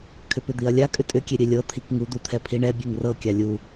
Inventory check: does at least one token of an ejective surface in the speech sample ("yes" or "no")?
yes